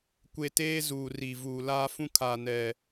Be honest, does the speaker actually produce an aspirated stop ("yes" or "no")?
yes